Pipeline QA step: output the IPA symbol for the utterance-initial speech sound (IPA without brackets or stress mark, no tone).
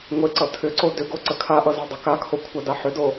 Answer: ŋʷ